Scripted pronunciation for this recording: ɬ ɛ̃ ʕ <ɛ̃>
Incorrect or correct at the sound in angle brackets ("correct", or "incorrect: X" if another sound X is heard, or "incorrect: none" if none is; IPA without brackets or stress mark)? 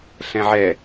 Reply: incorrect: ɛ